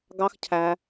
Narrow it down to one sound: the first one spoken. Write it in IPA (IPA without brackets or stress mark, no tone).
ɡ